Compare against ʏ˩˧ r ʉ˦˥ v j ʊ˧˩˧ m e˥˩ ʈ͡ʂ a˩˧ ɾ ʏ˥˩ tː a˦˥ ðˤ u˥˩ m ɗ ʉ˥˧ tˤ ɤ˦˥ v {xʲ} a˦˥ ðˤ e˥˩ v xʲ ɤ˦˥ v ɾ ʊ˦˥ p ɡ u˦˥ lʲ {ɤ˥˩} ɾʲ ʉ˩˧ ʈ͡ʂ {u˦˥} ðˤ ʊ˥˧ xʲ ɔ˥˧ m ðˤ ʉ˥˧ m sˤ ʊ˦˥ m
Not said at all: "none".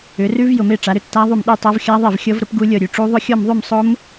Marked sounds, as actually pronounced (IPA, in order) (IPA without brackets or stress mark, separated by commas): xʲ, ɤ˥˩, u˦˥